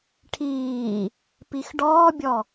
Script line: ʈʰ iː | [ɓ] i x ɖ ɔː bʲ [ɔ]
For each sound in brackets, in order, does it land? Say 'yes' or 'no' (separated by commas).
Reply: no, yes